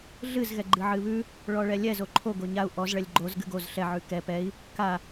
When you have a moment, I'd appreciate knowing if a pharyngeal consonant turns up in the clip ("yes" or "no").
yes